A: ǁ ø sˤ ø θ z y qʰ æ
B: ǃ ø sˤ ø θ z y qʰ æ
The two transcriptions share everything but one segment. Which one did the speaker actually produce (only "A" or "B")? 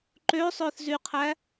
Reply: B